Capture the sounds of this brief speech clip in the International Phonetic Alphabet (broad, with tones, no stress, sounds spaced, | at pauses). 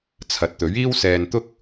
t͡sʰ ɐ˨ t̚ t̪ ɵ˨˥ ɥ iː˥ w s ɛː˧ n t̪ ʊ˥ k̚